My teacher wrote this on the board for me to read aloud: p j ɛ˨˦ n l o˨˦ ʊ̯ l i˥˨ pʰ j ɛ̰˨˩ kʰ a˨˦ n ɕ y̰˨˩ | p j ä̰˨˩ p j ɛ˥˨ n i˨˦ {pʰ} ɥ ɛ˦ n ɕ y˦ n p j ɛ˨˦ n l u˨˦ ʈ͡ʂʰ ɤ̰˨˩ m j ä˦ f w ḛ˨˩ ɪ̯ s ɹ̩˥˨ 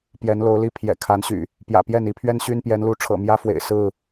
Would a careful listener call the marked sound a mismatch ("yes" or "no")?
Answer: no